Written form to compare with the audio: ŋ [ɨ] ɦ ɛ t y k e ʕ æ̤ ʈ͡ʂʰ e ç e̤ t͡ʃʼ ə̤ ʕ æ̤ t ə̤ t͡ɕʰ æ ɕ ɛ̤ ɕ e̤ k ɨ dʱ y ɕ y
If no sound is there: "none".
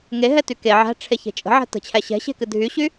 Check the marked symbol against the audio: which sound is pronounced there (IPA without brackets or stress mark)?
e